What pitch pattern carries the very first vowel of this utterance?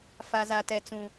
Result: high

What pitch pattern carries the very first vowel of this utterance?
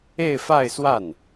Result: falling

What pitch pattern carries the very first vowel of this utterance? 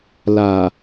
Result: low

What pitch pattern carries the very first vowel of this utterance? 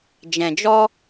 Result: low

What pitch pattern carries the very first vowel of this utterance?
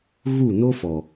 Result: falling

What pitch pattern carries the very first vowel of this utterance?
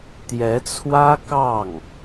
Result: rising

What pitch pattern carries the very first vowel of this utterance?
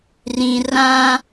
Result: low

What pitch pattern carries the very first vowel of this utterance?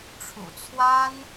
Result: low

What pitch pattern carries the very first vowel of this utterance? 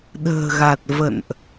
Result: low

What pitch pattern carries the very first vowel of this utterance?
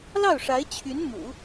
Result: falling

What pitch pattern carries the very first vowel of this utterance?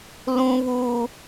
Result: high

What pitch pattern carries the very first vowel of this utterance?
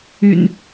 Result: low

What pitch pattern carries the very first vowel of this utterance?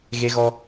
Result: high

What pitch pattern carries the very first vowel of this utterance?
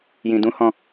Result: low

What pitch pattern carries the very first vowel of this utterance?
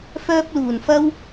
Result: high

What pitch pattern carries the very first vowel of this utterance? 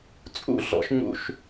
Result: falling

